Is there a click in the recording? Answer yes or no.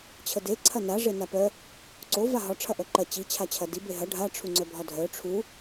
yes